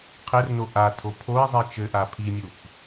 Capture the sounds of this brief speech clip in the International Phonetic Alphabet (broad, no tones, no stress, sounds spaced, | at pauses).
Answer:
qʰ ɘ r n o ʔ a tʰ o pʰ o i̯ zˤ i t͡ʃ ɘ ʔ a pʰ i mʲ u f